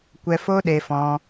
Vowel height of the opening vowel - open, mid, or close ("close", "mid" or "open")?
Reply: mid